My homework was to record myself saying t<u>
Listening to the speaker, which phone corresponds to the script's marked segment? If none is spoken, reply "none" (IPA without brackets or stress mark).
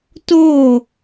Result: o